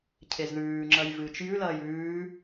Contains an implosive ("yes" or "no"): no